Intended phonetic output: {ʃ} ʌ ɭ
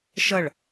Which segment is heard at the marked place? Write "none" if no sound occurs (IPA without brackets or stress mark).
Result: ʃ